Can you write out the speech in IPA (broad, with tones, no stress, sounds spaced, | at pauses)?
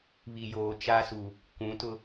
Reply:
β i˨ j oː˨ t͡ʃ a˦ s u˨ | kʷ ũ˨˦ t ʊ˦